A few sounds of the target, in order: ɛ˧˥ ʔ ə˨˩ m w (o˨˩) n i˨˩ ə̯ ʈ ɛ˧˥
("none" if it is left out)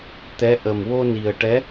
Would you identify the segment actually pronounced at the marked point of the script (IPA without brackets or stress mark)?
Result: o˧